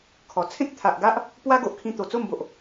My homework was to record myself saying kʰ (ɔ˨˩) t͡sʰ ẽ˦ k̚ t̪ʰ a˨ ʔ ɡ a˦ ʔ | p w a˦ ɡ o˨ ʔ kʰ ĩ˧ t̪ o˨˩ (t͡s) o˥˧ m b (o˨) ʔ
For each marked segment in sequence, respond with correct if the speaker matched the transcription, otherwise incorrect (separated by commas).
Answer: correct, correct, correct